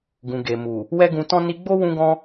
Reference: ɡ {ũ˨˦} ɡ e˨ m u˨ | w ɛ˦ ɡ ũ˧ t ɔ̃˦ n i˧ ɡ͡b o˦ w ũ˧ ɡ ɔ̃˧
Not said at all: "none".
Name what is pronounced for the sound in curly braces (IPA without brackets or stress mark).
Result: ũ˨